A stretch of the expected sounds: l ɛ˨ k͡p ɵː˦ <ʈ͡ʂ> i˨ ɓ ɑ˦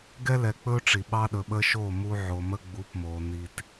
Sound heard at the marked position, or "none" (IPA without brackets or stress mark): ʈ͡ʂ